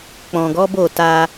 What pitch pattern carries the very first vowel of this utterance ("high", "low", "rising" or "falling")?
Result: low